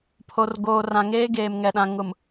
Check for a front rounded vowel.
absent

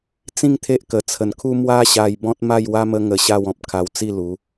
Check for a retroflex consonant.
absent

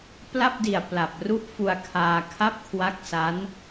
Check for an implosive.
absent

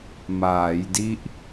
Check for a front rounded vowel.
absent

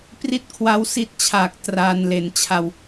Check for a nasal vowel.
absent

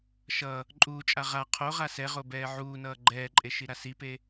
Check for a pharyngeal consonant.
present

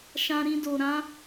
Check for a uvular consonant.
absent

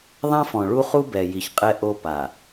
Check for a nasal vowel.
present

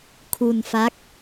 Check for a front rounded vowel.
absent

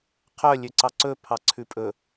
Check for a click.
present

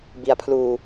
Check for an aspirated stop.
present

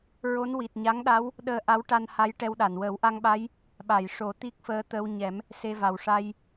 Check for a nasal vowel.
absent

